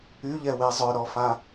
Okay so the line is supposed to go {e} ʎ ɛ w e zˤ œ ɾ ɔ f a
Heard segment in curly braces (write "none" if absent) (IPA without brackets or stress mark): y